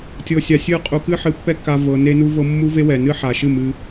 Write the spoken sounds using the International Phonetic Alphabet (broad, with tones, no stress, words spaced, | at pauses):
tʲɤ˧sʲa˧sʲɨ˦˨qʼu˧ kɨ˦ħɨ˧pːɛ˦ ka˦vɤ˧ ne˦nu˦vɤ˦ mːu˦ve˦wɛ˨ nɨ˦ħa˨ʃɨ˦˨ mɨ˦